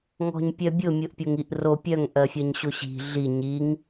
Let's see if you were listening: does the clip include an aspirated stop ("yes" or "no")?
no